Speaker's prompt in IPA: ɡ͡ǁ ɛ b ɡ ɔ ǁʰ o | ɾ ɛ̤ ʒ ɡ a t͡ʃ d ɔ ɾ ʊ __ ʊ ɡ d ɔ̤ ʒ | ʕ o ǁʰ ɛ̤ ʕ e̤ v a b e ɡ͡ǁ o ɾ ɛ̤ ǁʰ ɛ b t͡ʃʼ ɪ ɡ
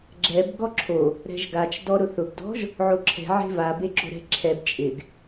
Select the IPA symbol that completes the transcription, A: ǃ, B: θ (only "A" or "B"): B